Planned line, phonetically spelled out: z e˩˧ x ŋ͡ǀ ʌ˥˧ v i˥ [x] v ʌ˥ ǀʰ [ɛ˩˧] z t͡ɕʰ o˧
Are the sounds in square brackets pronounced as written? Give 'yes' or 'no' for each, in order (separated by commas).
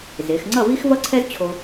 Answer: yes, no